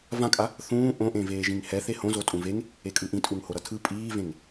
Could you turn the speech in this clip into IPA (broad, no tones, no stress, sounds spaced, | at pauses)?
v ã kʼ a | θ ũː ʔ õ ʔ ẽ v eː ʒ ĩ ŋ h ɛ θ e h õ z o tʼ ũ v e ŋ | e kʼ ɯ ʔ ĩ tʼ u ŋ h o ɾ ʌ tʰ ɯ pʼ iː v ẽ ŋ